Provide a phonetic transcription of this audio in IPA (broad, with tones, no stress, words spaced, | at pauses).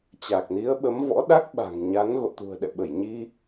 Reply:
t͡ɕa˨˩k̚ni˨˦ə̯ɓə˨˦m vɔ̰˧˥ɗa˦˥k̚ ɓa̤˨˩ŋɲa˨˦n ɣo̰˧˨t̪ṳ˨˩ə̯ɗɛ̰˧˨ ɓə˧˩jɲi˧